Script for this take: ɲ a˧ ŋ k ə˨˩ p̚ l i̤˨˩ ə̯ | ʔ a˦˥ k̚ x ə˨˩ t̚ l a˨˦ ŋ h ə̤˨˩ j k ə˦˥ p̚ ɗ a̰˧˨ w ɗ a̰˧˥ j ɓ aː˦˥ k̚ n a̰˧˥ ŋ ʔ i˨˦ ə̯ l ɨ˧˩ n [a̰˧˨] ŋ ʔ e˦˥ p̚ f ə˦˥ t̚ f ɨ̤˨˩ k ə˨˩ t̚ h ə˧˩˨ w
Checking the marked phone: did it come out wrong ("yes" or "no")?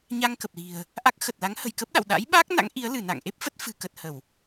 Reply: no